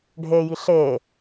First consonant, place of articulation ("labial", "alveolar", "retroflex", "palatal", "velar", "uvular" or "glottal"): retroflex